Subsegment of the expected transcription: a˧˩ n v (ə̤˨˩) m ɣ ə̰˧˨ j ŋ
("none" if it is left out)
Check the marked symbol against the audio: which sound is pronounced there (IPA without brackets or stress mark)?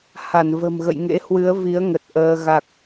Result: ə̤˨˩